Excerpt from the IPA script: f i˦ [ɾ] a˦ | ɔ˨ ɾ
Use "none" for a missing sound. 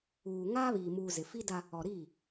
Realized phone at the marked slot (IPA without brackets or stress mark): d